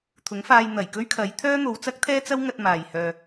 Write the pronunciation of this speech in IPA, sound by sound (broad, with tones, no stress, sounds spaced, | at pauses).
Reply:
t̪ʰ ʊ˨˥ ŋ f aː˧ j n̪ ɐ˨˩ j k ɵ˥ ɥ kʰ ɐ˨˥ j t̪ʰ œː˥ n̪ o˨˧ w t͡s ɐ˥ k̚ t̪ʰ ɛː˥ t͡s ɐ˥ w ŋ ɐ˧ t̚ m aː˨ j h œː˧